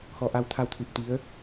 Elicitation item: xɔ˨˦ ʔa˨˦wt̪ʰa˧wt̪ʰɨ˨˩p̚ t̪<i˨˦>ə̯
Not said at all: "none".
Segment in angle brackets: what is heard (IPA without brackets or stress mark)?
i˨˦